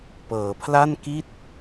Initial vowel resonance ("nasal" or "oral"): oral